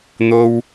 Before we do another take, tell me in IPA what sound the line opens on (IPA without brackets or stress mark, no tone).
n̪